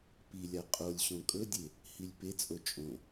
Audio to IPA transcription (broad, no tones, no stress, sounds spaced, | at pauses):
p i lʲ a qʼ o lʲ ɕ õ kʼ ɵ dʲ e | h i lʲ p e t͡sʼ o t͡ʃʼ õ